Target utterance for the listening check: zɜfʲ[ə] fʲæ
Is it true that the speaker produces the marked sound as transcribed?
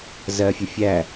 yes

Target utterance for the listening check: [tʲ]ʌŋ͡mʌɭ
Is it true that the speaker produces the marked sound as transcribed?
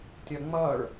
yes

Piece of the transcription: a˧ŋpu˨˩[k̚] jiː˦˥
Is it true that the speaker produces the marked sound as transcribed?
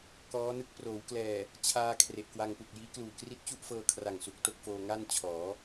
yes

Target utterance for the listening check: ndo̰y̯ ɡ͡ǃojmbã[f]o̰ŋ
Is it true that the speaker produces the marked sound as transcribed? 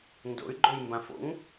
yes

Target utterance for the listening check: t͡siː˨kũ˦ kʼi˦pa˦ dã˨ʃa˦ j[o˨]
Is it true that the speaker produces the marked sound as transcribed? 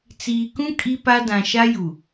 no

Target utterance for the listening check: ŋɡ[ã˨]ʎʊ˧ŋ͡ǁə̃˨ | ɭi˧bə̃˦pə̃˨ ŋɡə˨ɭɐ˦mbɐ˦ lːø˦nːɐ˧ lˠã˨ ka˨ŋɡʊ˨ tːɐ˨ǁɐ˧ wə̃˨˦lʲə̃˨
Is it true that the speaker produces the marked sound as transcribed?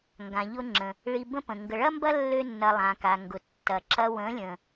yes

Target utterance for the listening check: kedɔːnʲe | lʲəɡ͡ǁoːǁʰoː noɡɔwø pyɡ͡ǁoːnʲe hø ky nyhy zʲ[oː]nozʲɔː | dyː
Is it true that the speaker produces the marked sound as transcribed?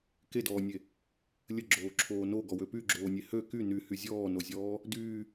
no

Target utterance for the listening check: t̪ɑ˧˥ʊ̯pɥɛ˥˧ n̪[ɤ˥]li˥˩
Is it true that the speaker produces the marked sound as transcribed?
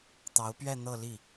no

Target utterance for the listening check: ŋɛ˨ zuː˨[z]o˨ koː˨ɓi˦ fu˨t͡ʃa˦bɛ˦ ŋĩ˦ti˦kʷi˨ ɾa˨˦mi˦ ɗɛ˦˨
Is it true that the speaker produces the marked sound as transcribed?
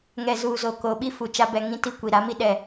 yes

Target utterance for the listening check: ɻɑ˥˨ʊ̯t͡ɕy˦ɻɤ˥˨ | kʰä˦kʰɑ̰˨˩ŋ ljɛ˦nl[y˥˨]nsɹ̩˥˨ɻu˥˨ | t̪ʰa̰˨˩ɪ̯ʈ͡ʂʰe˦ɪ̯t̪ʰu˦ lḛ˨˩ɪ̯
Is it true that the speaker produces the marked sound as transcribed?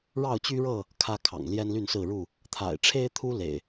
yes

